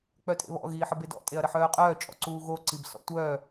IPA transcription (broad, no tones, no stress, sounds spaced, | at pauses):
k͡p œ tʼ ḛ β ɔ̰ ɣ iː ħ ə b e d ɔ̰ tʼ e ɐ̯ ɾ ə ħ œː qʼ œː t͡ʃʼ ɔ̰ ǀ uː ɣ o ǀ i b s ɔ̰ tʷ œː